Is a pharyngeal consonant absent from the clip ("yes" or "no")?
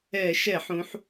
no